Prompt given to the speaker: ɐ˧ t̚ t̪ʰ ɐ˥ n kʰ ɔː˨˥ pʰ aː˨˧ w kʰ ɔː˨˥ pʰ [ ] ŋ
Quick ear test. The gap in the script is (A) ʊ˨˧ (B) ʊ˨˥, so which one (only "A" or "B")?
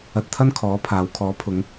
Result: A